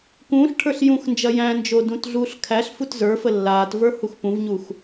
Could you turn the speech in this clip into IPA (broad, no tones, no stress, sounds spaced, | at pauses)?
k ũː ɬ ʈʰ ə˞ ɬ j ũ x n d͡ʒ ɐ j æ̃ n d͡ʒ o d ũ t ɮ uː ɬ kʰ æ ɬ f u t z ə˞ f ə lː aː t v ə˞ h u x p ũ v ɲ u x